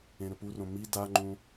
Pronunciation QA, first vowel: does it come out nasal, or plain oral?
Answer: nasal